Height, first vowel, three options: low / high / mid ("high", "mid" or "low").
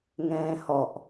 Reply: mid